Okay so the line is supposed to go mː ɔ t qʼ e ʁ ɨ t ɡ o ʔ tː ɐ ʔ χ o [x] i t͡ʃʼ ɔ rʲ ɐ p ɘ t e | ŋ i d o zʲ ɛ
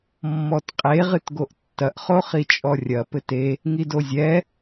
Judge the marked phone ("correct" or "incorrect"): incorrect